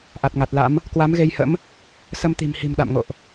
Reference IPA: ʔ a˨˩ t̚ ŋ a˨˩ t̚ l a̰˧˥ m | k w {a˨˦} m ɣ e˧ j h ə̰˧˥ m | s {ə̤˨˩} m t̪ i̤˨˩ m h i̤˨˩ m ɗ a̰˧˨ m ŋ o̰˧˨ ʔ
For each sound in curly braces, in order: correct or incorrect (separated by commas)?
correct, incorrect